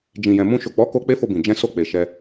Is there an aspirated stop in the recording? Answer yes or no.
no